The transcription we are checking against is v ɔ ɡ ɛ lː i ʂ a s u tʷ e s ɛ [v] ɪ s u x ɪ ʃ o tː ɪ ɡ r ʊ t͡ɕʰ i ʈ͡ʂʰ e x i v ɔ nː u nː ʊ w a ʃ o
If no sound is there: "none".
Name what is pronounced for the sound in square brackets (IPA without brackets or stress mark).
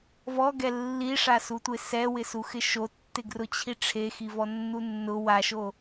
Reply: w